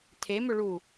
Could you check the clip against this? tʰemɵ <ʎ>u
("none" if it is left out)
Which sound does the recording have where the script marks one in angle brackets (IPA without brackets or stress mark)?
ɭ